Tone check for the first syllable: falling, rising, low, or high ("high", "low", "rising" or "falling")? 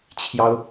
high